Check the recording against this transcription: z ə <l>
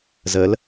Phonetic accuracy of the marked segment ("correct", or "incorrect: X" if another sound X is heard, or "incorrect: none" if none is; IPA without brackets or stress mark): correct